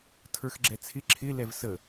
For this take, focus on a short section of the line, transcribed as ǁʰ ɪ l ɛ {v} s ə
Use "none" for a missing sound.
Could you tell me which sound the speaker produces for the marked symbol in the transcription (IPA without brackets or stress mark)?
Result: v